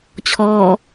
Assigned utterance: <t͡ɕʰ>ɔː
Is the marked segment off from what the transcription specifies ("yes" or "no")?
no